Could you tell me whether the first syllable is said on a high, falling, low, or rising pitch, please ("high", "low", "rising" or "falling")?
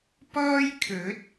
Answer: high